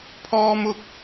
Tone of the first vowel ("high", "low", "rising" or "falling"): high